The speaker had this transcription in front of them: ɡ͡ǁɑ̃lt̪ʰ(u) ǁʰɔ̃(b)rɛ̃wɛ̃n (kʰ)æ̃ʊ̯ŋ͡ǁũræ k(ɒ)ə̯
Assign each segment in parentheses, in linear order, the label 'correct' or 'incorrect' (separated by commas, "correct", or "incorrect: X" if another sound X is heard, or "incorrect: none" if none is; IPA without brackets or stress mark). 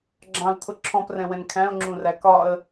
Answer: incorrect: ʊ, incorrect: p, correct, correct